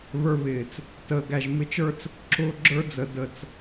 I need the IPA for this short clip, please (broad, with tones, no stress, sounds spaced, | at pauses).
β ə˞˧ β ɪː˨ t͡s | t əː˨ ɡ æ˨ ʒ m ɪ˧ t͡ʃ ə˞˦ t͡s | ǁ ʊː˦ ɡ͡ǁ ə˞˦ d͡z ə˨ d ə˨ t͡s